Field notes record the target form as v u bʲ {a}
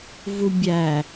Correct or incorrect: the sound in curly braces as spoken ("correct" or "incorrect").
incorrect